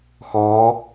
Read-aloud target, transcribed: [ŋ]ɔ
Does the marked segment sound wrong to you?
yes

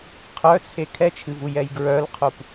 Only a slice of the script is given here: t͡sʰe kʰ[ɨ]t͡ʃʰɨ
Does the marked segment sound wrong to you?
yes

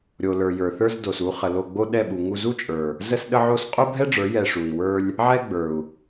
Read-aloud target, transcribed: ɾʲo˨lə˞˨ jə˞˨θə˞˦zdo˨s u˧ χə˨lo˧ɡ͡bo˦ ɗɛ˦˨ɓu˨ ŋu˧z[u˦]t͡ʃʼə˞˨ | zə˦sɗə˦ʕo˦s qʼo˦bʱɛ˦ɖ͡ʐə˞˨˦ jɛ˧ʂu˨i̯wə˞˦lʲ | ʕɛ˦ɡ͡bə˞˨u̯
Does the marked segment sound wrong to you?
no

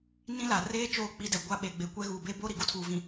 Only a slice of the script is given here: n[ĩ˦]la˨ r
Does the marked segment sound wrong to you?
no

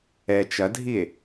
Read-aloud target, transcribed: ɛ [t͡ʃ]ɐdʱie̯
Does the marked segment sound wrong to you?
no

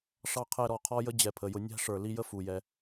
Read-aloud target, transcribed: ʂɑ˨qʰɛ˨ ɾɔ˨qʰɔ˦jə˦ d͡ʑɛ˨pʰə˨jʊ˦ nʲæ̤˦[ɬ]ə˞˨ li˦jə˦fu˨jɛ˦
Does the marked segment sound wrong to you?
yes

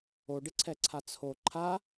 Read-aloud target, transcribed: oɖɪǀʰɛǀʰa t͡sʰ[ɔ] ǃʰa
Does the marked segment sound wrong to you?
yes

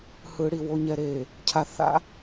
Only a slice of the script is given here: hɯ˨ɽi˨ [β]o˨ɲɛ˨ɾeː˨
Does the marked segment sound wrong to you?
yes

